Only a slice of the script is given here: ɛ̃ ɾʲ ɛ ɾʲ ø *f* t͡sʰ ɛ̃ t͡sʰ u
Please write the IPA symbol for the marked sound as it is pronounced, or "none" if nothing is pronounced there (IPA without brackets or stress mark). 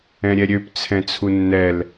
p